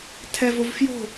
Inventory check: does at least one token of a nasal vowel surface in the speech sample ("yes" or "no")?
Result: no